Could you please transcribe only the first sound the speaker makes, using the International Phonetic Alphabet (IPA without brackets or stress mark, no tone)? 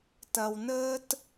t